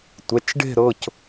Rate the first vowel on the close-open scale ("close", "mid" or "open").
mid